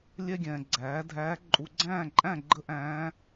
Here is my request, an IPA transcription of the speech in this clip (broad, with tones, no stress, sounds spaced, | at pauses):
lʲ ɛ˥ ɡʲ ɛ̃ː˨ ɡ͡ǀ æː˩˥ dʱ æ˧˥ ǃʼ u˨ ɡ͡ǀ æ̃ː˥˨ ǃʼ æ̃˥˨ ɡ͡ǃ ə˥ ʔ æ̃ː˧˥